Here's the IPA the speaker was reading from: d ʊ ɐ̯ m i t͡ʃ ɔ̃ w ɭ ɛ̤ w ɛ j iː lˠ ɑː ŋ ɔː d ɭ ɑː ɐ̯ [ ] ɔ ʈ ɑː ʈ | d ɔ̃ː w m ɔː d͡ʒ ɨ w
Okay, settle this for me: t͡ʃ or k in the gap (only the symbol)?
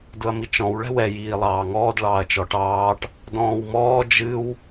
t͡ʃ